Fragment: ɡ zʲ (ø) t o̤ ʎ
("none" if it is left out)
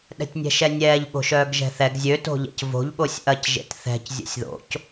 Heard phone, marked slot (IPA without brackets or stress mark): ø